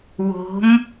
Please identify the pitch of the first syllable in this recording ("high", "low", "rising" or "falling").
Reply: rising